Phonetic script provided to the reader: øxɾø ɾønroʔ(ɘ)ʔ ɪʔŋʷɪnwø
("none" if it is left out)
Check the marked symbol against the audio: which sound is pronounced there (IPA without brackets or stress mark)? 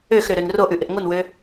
ʉ